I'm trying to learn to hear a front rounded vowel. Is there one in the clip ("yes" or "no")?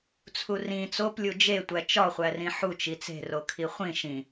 no